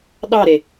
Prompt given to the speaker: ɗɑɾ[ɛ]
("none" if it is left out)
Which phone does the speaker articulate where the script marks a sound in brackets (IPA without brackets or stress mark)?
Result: e